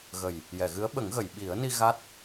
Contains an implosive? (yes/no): yes